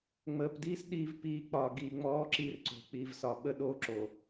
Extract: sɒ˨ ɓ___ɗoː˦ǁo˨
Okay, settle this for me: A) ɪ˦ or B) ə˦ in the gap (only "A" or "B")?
B